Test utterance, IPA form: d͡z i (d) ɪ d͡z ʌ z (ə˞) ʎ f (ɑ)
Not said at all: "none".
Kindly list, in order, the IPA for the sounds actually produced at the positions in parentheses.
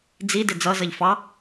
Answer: d, ʌ, ɑ

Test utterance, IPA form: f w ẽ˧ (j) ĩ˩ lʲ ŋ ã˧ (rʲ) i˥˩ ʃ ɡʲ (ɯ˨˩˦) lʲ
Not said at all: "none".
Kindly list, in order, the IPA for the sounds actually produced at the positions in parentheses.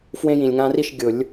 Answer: j, r, ʊ˨˩˦

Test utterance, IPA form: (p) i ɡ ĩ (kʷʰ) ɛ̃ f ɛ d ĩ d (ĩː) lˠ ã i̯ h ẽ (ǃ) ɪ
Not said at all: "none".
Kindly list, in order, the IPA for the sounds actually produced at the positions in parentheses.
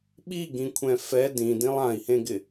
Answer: ɓ, kʷʰ, ĩ, ɡ

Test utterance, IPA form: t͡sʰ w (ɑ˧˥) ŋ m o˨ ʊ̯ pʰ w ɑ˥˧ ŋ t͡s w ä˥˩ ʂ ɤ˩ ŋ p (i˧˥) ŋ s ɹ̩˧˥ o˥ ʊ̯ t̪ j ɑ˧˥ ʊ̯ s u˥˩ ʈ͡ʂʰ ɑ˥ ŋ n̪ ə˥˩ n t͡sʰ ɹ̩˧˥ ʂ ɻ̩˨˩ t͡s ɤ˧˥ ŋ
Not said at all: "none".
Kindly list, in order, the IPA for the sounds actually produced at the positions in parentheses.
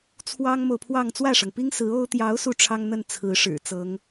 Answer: ɑ˥, i˥

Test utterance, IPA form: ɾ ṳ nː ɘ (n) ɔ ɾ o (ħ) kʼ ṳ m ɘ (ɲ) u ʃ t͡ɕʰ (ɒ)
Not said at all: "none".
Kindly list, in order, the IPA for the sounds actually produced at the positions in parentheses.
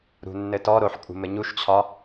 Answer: t, ħ, ɲ, ɒ

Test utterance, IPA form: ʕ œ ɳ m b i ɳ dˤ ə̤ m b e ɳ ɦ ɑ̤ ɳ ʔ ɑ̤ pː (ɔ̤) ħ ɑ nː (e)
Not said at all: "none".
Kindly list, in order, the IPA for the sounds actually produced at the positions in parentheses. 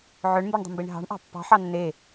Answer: ɑ̤, e

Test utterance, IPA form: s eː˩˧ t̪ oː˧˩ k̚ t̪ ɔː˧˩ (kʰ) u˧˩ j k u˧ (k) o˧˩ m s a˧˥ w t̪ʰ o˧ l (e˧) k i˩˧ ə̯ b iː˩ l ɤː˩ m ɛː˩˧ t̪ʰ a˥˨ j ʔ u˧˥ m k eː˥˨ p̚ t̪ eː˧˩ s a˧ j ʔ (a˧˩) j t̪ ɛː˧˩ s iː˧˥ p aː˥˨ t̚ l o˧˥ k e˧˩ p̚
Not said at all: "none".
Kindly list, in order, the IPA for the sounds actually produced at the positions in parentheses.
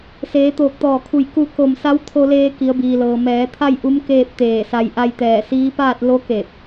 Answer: kʰ, k, eː˧, a˧

